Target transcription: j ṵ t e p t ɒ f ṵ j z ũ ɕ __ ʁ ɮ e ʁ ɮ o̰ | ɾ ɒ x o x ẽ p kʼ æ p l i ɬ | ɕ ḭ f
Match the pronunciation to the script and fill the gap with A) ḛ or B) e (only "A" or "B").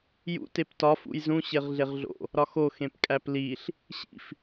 B